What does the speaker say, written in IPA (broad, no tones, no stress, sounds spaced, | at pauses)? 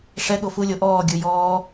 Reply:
ʂ ɛ ɠ o f u lʲ o ʔ ɔː ɡʲ ɯ j ɔː